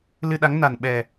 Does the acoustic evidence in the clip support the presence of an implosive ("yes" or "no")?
yes